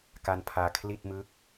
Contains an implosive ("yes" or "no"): no